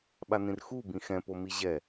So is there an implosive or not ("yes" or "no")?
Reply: yes